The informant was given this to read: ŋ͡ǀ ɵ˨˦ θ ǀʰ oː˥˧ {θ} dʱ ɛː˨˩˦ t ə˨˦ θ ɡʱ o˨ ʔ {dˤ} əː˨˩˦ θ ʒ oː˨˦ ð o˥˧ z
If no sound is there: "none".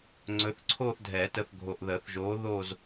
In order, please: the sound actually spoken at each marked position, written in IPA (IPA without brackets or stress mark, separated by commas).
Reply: θ, ð